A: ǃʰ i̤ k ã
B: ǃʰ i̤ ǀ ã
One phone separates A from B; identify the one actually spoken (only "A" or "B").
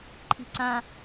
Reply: B